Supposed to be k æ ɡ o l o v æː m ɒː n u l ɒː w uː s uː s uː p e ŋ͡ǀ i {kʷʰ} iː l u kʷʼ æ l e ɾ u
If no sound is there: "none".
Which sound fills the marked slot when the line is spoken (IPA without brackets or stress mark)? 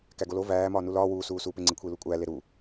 kʷʰ